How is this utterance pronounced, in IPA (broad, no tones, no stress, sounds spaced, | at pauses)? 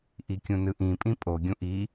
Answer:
ʔ i kʲ ũ n ɯ ʔ ĩ pʼ ĩ pʼ o ɡʲ ũ ʔ i